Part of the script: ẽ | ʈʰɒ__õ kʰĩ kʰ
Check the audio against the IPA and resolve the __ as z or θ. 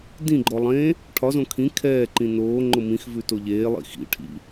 z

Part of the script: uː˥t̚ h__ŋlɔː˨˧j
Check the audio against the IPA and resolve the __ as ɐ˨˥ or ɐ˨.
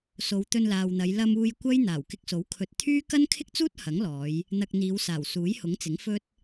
ɐ˨˥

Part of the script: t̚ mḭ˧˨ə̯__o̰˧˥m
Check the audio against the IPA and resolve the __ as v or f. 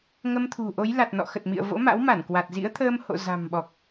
v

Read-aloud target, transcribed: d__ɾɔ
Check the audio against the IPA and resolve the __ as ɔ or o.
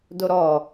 o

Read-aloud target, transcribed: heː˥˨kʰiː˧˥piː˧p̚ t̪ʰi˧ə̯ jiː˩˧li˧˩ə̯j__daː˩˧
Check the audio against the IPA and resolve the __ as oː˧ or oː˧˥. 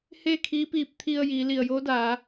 oː˧˥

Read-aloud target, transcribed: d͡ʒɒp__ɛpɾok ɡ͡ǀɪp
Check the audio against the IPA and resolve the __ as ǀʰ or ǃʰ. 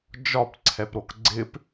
ǀʰ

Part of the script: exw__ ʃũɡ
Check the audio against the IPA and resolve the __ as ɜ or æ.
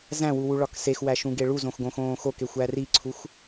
æ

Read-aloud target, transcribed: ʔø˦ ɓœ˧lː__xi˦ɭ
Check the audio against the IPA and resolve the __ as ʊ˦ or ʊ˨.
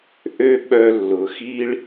ʊ˨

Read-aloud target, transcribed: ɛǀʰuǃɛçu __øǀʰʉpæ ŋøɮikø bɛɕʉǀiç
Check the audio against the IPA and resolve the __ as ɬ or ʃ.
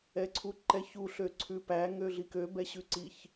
ɬ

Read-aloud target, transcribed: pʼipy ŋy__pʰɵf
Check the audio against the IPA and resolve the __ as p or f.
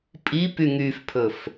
f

